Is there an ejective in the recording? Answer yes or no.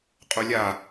yes